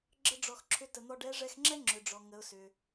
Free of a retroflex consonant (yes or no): no